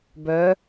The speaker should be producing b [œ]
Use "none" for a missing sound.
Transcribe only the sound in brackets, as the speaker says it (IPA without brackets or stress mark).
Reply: œ